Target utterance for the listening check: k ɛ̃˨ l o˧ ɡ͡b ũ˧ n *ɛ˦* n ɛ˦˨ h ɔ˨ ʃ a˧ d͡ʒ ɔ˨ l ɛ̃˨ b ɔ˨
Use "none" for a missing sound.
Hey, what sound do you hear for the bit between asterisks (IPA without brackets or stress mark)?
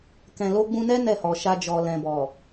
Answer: ɛ˦